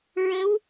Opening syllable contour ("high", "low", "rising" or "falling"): rising